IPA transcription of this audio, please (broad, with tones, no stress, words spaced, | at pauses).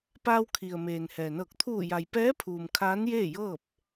paː˧wkʰi˩ə̯ meː˩nhɛː˩nɤː˧˩k̚ t̪ʰuː˧˩ja˩j pɛː˧˥pʰuː˩m kʰaː˧˥njeː˥˨jɤː˥˨p̚